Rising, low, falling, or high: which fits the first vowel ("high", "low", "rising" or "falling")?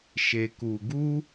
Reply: low